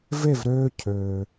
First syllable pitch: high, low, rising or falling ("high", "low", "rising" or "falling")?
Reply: falling